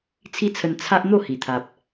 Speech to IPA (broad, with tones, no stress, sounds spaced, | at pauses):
t͡sʰ i˦ t͡sʰ ə˧ n t͡sʰ a˦ ʔ n̪ o˥˧ h i˨˩ t̪ʰ a˨ p̚